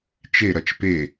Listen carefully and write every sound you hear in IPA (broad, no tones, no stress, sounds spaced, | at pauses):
t͡ʃ e ɾ ɐ t͡ʃ p e